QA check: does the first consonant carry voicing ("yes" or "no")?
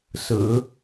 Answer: no